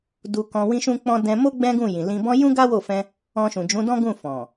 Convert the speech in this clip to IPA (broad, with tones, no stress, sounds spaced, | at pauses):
d u˧ k ɔ̃˧ w ĩ˦ ʃ ũ˦ k͡p ɔ̃˦ d ɛ̃˧ m o˦ ɡ͡b ɛ̃˦ ɡ ũ˦˨ j ĩ˨ l ĩ˧ b ɔ̃˦ j ũ˦ ɡ a˦ w o˦˨ f ɛ̃˧ | ɔ̃˧ ʃ ũ˨ d͡ʒ ũ˨˦ d ɔ̃˦ ɡ ũ˦˨ f ɔ̃˨